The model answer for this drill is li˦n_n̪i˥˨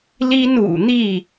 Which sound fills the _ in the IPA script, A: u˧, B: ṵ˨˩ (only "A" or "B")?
B